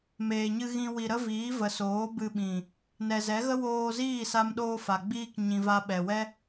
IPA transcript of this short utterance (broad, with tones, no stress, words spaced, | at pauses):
meː˨ɲɨ˧ ɣĩ˧ wi˨ ɾə˦viː˨˦ və˨soː˨˦ bɨ˧ɓĩ˨ | nɛ˨zɛ˨˦ɣə˦ woː˧ziː˦˨ sa˦mɗoː˦fa˨ ɡ͡biː˧k ɲĩ˨va˧ ɓɛ˨wɛ˦